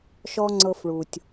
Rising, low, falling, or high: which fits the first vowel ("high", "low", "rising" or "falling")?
high